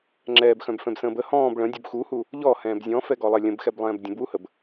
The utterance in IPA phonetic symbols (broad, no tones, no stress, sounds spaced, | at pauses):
ŋ͡ǁ ɛː b x œ̃ b f ɛ̃ b s ə̃ː b ə h ɔ̃ː b ɭ ə̃ dʲ u b x u h u | ʎ ɔ h ɛ̃ː b zʲ ɔ̃ f ɛ ɡ ɔ lˠ ɛ lʲ ə̃ b x ɛ b lˠ ɛ̃ː b dʲ ə̃ b w u h ə b